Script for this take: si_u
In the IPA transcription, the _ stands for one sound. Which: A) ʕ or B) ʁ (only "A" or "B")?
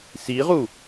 B